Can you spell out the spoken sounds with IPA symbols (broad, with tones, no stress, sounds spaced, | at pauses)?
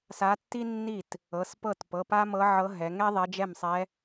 s a˧˥ tː i˥ nː i˥˩ t | ɤ˩˧˩ s p ɤ˥˩ t p ɤ˩˧˩ p a˥ m ɤ˧˥ ʕ ɤ˧˥ ɦ ɛ˩˧ ŋ ɛ˥ ðˤ ɛ˧˥ d͡ʒ ɛ˥˩ m sˤ ɛ˧˥